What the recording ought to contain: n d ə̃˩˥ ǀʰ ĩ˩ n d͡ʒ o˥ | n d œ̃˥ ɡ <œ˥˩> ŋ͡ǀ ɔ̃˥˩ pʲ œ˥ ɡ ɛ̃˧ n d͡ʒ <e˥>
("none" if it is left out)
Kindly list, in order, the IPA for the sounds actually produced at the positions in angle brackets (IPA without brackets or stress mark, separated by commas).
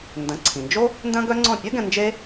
œ˥, e˥